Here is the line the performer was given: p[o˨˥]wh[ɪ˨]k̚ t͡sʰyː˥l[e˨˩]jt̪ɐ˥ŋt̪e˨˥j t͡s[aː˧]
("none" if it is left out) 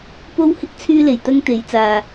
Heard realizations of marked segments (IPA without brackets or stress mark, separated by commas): o˥, ɪ˥, e˨, aː˧